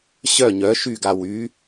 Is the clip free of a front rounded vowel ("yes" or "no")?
no